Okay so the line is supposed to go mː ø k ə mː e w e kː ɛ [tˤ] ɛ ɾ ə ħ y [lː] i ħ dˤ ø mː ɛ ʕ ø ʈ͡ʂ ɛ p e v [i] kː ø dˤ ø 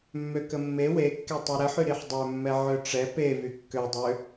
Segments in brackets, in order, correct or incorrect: correct, incorrect: ɾ, incorrect: y

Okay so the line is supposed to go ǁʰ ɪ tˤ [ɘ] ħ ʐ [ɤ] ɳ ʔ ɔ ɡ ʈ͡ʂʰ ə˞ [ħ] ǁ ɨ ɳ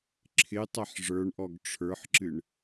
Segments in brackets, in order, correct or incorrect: incorrect: ɛ, incorrect: ə˞, correct

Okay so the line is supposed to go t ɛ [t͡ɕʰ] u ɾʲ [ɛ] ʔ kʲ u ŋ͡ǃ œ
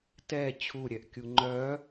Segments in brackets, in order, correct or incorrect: correct, correct

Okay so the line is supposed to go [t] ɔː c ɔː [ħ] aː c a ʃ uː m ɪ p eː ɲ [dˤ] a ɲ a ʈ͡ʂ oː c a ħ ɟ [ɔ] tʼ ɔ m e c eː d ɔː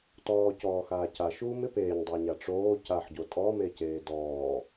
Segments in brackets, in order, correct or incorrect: correct, incorrect: x, correct, incorrect: o

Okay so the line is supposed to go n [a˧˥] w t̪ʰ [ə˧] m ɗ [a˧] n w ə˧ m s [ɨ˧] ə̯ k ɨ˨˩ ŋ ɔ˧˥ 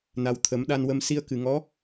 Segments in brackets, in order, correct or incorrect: incorrect: a˨˩, incorrect: ə˨˩˦, correct, incorrect: i˧

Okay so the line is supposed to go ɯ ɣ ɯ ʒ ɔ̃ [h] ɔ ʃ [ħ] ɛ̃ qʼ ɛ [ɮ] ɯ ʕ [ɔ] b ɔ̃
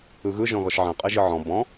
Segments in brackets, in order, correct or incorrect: incorrect: ɣ, incorrect: ʕ, incorrect: ʒ, incorrect: ɔ̃

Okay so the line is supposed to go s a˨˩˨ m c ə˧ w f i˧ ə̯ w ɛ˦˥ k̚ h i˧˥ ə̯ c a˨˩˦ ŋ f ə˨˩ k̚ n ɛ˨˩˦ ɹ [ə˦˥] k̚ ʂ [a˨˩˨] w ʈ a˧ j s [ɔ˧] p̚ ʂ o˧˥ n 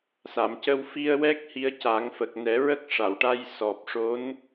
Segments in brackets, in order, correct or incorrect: correct, correct, incorrect: ɔ˨˩

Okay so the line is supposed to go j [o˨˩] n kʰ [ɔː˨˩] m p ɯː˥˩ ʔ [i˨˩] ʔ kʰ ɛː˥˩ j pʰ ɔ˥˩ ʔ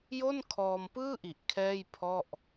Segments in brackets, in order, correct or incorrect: incorrect: o˥˩, incorrect: ɔː˧, correct

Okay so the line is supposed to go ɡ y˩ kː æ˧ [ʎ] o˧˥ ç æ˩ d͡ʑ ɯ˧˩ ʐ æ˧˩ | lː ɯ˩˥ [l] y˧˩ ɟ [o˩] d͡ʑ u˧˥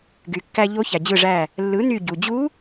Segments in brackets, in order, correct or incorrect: correct, incorrect: n, incorrect: u˩

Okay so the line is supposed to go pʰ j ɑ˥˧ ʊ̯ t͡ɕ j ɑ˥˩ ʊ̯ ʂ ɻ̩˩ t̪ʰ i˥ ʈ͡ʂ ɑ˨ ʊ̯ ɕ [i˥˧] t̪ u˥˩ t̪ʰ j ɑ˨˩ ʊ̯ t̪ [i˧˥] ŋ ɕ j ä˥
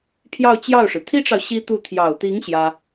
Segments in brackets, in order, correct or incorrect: incorrect: i˥, correct

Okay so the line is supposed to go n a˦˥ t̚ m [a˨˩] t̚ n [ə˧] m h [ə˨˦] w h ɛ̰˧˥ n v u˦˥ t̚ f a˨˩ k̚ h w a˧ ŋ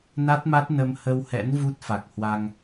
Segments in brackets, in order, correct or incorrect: incorrect: a˦˥, correct, incorrect: ə˧

